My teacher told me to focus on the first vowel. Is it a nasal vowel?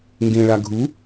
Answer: yes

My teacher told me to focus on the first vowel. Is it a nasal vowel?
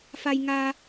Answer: no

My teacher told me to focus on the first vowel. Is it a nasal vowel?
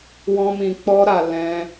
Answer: yes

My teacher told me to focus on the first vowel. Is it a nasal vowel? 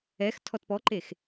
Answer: no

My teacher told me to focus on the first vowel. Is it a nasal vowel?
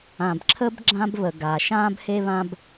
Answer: yes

